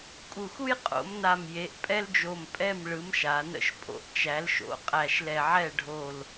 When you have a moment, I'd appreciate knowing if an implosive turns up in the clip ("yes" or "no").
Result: no